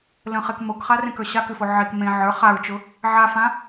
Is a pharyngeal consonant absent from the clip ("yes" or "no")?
no